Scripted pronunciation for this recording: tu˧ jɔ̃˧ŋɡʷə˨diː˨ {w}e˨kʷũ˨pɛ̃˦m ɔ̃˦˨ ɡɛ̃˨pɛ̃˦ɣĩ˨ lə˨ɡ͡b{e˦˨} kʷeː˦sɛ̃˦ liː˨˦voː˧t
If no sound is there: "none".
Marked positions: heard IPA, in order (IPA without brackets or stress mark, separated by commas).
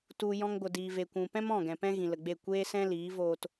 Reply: v, e˦˨